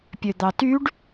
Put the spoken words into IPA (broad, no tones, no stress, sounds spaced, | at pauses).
pʲ ø d̪ ɑ t y ɖ